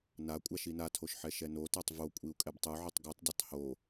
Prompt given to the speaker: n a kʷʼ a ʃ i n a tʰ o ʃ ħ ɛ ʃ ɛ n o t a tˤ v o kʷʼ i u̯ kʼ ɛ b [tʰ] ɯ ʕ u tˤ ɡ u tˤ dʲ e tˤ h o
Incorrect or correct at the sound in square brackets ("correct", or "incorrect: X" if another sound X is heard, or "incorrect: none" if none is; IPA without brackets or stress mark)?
incorrect: tˤ